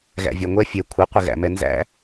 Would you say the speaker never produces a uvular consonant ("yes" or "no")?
no